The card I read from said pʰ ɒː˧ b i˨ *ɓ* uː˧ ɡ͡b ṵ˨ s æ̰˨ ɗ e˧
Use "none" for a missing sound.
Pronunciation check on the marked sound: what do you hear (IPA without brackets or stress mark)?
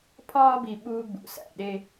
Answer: ɓ